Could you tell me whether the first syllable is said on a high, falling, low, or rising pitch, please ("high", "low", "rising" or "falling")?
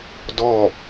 falling